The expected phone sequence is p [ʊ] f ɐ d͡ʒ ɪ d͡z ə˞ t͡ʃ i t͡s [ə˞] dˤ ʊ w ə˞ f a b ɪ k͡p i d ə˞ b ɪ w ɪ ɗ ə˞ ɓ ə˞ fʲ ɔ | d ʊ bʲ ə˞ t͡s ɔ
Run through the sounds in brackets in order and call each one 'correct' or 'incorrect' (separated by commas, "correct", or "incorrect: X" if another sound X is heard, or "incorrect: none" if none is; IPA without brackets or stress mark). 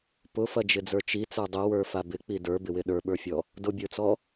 correct, correct